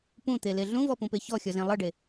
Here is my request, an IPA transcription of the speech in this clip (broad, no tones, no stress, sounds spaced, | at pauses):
p ũ t̪ e l e ɮ ũ v ɔ p ũ p e ç ɔ xʲ ɔ z ẽ lˠ ʌ ɖ e